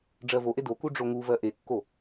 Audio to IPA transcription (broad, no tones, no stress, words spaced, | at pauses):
ɖ͡ʐɜvoʔe doku ɖ͡ʐoŋuvɜ ʔekːo